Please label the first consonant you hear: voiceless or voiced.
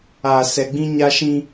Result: voiceless